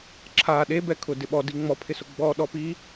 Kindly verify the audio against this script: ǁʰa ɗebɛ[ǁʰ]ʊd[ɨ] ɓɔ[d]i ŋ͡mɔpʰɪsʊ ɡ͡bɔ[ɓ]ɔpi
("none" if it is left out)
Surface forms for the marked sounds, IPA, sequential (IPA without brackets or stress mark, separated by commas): kʰ, ɪ, d, ɗ